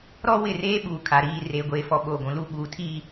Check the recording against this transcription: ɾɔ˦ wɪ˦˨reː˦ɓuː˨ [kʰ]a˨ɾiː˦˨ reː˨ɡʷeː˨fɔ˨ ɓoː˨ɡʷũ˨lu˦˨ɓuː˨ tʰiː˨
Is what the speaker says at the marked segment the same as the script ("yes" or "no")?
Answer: yes